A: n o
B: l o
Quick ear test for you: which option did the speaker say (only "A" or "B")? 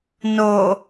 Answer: A